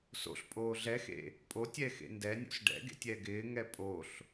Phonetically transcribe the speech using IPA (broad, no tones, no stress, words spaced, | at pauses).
so̰ɬpʼoː ɮɛxḛ | pʼotʲɛxḛ ndɛnʲo̰s ɖɛ̰ɡḛtʲɛ ɡɪːŋɛ pʼoɬ